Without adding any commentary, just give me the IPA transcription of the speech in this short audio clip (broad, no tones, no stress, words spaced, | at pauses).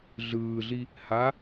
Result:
ɮɯːɮi | ha